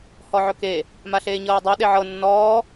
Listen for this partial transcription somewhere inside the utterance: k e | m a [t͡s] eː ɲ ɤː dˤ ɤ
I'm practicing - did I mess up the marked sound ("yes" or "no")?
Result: yes